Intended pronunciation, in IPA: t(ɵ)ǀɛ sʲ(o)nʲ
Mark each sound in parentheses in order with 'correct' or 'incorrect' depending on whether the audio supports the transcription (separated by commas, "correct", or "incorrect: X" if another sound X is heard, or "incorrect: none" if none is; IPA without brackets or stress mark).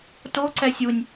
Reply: incorrect: o, incorrect: u